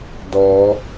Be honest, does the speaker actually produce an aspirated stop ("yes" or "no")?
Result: no